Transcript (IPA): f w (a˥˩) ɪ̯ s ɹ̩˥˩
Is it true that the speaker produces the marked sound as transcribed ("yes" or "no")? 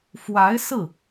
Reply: no